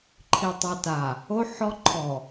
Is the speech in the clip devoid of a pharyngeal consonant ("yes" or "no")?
no